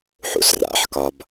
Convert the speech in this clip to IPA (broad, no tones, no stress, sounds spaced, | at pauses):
ħ ṵ s r a̰ ħ k ɒ b